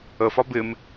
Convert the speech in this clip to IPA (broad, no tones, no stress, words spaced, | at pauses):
əfɒ bɪm